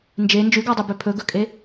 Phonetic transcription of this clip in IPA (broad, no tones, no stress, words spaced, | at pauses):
nd͡ʒe nd͡ʒʉɡɔdˤøbø pʰɵɡɵkʼe